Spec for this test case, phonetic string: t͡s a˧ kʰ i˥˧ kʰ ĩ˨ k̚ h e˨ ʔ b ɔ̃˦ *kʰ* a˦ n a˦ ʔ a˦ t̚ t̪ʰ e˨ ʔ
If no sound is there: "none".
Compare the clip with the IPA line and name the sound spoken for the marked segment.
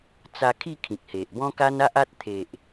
k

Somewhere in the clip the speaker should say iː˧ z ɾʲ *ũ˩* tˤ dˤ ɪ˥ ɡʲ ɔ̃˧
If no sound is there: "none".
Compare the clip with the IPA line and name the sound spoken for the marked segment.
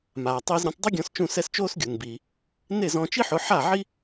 ũ˩˥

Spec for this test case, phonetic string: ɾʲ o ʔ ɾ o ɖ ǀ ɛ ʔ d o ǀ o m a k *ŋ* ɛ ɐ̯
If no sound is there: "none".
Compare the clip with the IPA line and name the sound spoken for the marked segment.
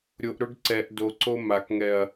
ŋ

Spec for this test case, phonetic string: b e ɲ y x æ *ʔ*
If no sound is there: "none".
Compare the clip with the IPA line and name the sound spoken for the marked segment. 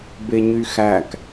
k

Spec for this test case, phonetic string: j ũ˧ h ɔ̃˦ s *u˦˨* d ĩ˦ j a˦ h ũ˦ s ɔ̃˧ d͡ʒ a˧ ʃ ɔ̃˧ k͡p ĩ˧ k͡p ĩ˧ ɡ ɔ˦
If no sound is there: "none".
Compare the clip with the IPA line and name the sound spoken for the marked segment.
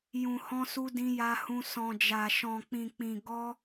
u˦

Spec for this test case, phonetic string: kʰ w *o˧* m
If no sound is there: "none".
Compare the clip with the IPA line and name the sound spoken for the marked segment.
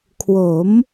o˩˦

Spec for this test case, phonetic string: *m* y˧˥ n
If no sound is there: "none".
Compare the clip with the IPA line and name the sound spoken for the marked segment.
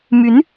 m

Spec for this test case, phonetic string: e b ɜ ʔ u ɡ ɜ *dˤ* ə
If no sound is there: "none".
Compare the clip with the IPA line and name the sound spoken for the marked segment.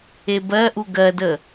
d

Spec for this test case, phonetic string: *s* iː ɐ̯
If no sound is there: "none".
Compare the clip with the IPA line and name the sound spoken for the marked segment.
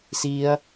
s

